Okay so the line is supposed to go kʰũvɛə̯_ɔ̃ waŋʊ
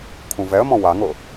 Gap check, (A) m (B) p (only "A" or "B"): A